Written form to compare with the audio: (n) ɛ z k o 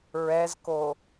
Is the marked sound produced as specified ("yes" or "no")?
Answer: no